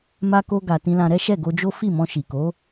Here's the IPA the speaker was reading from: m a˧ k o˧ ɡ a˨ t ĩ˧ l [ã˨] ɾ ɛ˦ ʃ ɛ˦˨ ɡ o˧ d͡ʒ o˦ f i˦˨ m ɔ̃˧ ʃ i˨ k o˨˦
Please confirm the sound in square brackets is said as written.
no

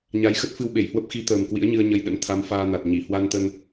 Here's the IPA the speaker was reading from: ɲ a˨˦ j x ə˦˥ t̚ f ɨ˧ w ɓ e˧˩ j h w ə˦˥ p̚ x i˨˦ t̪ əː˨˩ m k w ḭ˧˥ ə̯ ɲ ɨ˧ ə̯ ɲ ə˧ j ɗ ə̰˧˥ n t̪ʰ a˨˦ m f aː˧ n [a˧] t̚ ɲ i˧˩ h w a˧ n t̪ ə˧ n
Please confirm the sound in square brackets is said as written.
no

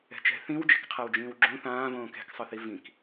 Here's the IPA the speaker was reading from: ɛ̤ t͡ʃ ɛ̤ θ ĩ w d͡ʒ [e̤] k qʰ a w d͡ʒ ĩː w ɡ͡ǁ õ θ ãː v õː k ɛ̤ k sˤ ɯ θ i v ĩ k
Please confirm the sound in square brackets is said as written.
yes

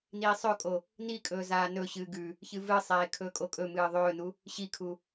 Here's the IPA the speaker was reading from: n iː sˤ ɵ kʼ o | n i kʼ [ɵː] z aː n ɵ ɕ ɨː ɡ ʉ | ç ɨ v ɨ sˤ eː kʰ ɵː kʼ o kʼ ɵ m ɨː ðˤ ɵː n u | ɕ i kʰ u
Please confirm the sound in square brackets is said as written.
yes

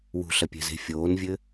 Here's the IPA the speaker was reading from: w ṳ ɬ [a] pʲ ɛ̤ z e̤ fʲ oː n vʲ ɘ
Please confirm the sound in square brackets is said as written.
no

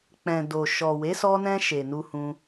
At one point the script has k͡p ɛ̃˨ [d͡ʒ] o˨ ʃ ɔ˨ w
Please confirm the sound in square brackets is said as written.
no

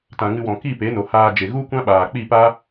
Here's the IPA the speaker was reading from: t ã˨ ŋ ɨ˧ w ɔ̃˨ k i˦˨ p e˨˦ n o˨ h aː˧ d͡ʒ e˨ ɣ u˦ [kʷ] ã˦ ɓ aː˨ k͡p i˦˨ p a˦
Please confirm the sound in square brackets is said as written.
yes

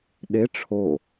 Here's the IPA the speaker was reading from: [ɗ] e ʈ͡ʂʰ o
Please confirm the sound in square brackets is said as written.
yes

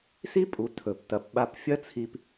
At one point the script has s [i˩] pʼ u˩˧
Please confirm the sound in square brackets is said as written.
no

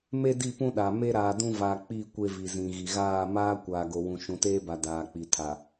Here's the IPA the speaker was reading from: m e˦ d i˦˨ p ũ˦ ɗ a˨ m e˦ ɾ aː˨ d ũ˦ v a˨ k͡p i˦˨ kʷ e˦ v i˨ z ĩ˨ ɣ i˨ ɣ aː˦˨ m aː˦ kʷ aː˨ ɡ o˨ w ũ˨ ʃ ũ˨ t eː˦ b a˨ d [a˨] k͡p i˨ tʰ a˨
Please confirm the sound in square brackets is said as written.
no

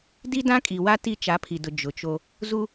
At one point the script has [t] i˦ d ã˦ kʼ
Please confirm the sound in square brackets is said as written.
no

